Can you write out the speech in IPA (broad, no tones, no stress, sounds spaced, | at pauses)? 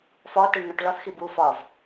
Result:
f ɒ t e ɳ n̪ ɒ ʈ ɭ ɒ θ x i b u f ɒ v